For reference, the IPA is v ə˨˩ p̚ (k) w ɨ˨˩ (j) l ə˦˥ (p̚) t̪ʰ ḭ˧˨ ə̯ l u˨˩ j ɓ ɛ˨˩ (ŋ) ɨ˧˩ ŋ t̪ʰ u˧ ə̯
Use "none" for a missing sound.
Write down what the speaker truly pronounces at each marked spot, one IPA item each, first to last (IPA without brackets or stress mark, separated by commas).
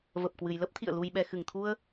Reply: k, j, p̚, x